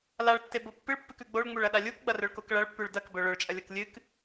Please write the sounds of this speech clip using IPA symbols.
l a ɭ tː e b o pː ɨ ɭ pː ɨ k ʉ ɡ͡b o ɭ ŋ͡m u ɭ ɐ ɗ a lʲ u k ɡ͡b ɐ r ɵ ɭ k o k ɭ ɐ ɭ pː ʉ ɭ d ɐ k b ɵ ɭ ɵ ɭ t͡ʃʼ ɐ lʲ ɐ k lʲ ɨ k

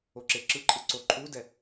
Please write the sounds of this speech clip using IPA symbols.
o ǁ e ǁ ɯ ǃʼ ɯ ǀ o ǃʼ u d ɛ

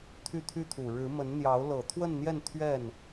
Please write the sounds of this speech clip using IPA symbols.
t̪ʰ y˥˩ t̪ʰ y˥ t̪ʰ u˨˩ ɻ ɻ̩˧˥ m ə˧˥ n n̪ j ɑ˧˥ ʊ̯ l ɤ˨˩ t̪ʰ w ə˥˧ n n̪ j ɛ˥˧ n t̪ʰ ɥ ɛ˥˩ n

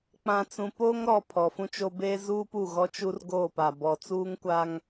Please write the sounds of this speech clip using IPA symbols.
k͡p ã˨ t͡s ũ˨ p oː˦ ŋ ɾ ɔ˨ pʰ ɔ˨ f ũ˦ t͡ʃ o˦ b eː˦ z uː˦ p u˦˨ ɣ ɔ˦ t͡ʃ u˦ r ɡ oː˦˨ p a˨ b ɔ˨ t͡s uː˦ ŋ kʷ a˦ ŋ

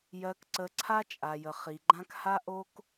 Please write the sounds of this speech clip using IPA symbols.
j ɜ˨ k ǀ ə˨ ǀʰ a˦ t͡ʃʼ a˨ j ə˨ χ i˨ ɡ͡ǃ ã˦ k h a˦ ʔ o˦ k

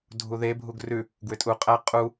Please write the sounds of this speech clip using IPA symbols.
dʱ u ð e bʱ u ɡ r ʉ | ɡ w ʏ tʼ u qʼ æ qʼ u

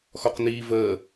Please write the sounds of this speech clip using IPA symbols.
x ɔ q n iː v əː

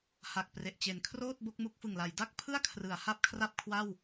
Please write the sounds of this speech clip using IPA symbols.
h a˨˩ k̚ p r e˨˩ ʔ t͡ɕ e˩˦ n kʰ r oː˥˩ t̚ b o˦˥ k̚ m u˦˥ k̚ f ɯ˨˩ ŋ l a˩˦ j d a˥˩ k̚ pʰ ɯ˥˩ a̯ kʰ r ɯ˩˦ a̯ h a˥˩ p̚ kʰ r a˥˩ p̚ kʰ w a˥˩ w

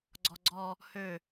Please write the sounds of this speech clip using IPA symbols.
ɡ͡ǀ ɔ ɡ͡ǀ ɔ | h ø

